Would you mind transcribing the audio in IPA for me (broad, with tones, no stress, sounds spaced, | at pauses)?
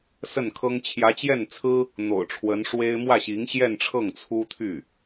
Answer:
s ə˥˩ n kʰ ɤ˥ ŋ t͡ɕʰ j ä˧˥ t͡ɕ j ɛ˥˩ n t͡sʰ ɹ̩˥ | n̪ o̰˨˩ ʊ̯ ʈ͡ʂʰ w ə˧˥ n ʂ w e˥ ɪ̯ m w ä˥˩ ɕ i˧˥ ŋ ɕ j ɛ˥˧ n ʈ͡ʂʰ ɤ˥˩ ŋ t͡sʰ u˥ t̪ʰ y˥˩